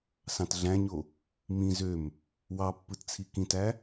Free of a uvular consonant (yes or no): yes